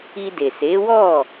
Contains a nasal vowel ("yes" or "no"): no